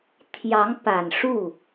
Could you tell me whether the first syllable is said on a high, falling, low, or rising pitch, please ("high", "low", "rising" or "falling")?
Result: rising